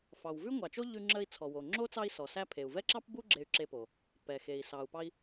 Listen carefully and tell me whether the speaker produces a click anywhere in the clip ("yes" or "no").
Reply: yes